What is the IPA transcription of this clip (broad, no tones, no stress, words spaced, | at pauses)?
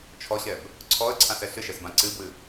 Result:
t͡ʃʰɔɕɛb | ǀʰɔə̯ǀʰãsɛ ɬɨʃɛsbã ǀɨbwɨ